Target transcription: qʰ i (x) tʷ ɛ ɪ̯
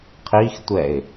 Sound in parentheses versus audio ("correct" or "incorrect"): correct